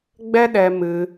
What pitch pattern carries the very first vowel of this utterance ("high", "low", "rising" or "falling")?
high